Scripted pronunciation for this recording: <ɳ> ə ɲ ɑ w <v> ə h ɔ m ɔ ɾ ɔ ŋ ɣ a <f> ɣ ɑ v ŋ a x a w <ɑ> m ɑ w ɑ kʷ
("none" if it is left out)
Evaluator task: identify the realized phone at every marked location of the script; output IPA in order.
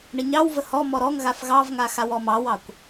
ɳ, v, f, ɔ

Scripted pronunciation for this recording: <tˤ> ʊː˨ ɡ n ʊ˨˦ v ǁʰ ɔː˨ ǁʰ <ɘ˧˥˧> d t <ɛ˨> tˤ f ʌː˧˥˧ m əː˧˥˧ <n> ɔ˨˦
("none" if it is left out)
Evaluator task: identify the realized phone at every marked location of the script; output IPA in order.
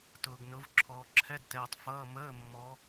t, ɛ˧˥˧, ɛː˨, mː

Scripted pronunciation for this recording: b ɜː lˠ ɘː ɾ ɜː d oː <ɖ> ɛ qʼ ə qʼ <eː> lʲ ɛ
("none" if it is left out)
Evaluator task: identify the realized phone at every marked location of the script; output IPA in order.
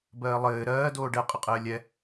ɖ, ɘː

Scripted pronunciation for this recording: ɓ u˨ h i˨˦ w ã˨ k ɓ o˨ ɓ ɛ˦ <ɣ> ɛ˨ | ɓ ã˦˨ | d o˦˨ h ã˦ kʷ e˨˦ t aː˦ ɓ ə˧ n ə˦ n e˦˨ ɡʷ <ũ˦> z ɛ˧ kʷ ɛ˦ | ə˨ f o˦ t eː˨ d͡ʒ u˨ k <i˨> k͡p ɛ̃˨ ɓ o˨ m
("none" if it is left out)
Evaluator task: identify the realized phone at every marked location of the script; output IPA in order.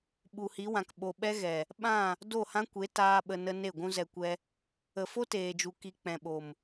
ɣ, ũ˦, i˧

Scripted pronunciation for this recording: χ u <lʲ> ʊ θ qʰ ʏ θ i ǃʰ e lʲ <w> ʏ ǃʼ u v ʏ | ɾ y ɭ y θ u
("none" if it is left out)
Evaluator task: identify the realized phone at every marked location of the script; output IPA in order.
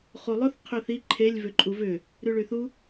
lˠ, v

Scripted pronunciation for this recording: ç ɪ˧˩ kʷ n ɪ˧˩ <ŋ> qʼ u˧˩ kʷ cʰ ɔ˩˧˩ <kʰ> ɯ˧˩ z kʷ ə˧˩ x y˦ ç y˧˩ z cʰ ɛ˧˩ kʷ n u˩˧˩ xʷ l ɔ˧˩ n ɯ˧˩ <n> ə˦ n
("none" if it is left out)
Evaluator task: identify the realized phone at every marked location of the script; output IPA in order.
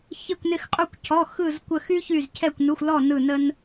x, x, n

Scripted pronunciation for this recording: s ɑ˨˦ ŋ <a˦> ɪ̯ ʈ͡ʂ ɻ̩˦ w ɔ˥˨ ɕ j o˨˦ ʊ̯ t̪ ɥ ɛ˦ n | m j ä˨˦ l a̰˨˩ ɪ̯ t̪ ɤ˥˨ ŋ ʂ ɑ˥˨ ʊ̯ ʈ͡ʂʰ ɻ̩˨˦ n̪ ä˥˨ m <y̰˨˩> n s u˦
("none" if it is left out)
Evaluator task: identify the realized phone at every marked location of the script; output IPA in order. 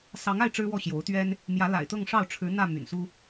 a˥˨, y̰˨˩

